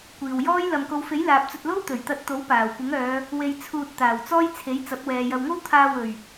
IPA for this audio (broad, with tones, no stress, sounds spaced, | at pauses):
kʷ iː˨ w j ɔː˥ j l ɐ˨ m k o˨˧ w f e˨˥ j l aː˨ p̚ t͡s ɵ˧ t̚ l o˥ w t̪ ɵ˨˩ ɥ t̪ ɐ˧ t̚ t̪ o˨˥ w p aː˨˩ w kʷ ɪ˨˥ ŋ œː˨˧ | w e˧ j t͡sʰ uː˧ t̚ t̪ aː˨˩ w t͡s ɔː˥ j t͡sʰ e˨˥ j t͡s ɐ˨˥ p̚ w ɛː˨ j ɐ˨ w ŋ o˥ w t̪ʰ aː˧ w ɵ˨˩ ɥ